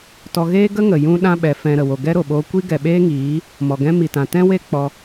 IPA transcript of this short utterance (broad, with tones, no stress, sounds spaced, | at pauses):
t ɔ˧ ɣ eː˦ ɡ ə˦ ŋ ə˨ j ũ˦ ɗ ã˦ ɓ ɛ˨˦ f ɛ̃˧ ɾ ə˨ w o˨ ɡ ɛ˦ ɾ o˨ ɓ o˧ kʷ i˦ ɡ ɛ˨ ɓ eː˦ ŋ iː˨˦ | m ɔ˨ ɡ ɛ̃˧ m i˨ t ã˨ t ɛ̃˦ w e˦ k͡p ɔ˧